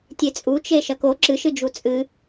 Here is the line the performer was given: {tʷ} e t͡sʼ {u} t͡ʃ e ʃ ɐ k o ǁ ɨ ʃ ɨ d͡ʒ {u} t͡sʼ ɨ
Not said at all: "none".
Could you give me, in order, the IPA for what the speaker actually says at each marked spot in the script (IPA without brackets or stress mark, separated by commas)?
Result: tʲ, u, u